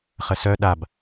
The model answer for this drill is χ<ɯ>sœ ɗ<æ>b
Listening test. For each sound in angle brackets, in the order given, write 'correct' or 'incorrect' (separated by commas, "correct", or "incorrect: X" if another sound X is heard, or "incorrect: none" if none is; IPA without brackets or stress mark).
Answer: incorrect: ə, incorrect: a